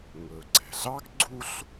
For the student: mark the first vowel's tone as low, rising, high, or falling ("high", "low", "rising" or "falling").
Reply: low